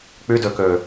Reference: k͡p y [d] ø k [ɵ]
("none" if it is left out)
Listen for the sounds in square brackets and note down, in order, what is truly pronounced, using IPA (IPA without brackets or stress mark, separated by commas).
d, ø